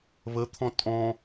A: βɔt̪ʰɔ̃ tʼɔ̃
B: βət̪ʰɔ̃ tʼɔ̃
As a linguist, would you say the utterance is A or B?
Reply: B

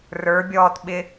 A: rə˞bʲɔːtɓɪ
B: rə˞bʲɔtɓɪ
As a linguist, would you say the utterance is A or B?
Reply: A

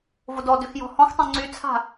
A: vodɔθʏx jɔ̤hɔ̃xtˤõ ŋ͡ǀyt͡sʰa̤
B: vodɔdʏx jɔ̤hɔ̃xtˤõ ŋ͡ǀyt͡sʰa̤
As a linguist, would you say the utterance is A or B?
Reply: B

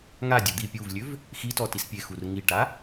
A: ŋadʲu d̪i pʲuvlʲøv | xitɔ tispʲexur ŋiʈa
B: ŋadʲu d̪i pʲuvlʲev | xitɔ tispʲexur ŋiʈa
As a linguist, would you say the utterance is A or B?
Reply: A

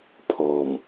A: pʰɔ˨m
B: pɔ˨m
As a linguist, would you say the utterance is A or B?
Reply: A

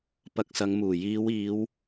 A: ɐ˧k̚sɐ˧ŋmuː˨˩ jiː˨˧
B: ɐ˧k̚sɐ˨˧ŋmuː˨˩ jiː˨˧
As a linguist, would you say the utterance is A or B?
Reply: B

